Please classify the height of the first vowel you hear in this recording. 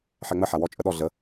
mid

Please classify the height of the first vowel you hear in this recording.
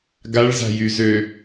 low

